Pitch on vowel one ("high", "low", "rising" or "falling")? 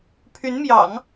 rising